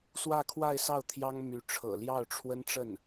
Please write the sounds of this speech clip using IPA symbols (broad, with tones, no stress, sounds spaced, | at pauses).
s w ä˥˧ kʰ w a˥˧ ɪ̯ s ɑ˥˩ ʊ̯ t̪ʰ j ɑ˥ ŋ m y˧˥ ʈ͡ʂʰ ɤ̰˨˩ l j ɑ˥˩ ʊ̯ ʈ͡ʂʰ w ə˥ n ʈ͡ʂ ə˥˩ n